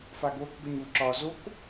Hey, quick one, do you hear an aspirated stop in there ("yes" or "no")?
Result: no